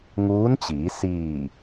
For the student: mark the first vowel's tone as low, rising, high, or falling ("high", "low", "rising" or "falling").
rising